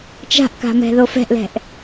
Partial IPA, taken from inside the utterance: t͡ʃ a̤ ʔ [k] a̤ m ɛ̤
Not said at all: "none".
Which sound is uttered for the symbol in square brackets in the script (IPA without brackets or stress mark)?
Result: k